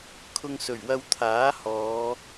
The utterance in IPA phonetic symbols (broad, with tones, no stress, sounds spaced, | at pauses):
kʰ ʊ˧ ŋ s ɵ˨˩ ɥ w ɐ˧ w t̪ʰ aː˨˥ h ɔː˨˧